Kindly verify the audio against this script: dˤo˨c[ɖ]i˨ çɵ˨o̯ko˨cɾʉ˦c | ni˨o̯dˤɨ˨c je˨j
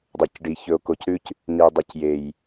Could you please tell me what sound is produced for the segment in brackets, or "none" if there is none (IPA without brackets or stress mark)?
ɖ